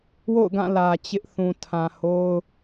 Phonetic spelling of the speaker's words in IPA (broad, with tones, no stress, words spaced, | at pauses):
wo̰˦˨ʊ̯ɡã˦˨ lä˨ t͡ɕɪ˦ʔ θũ˨tʰã˨ ho˦ʊ̯